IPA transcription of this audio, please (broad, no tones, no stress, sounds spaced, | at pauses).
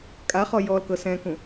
kʼ a χ ɔ j ɔ l k ɤ s ɛ̃ k ũ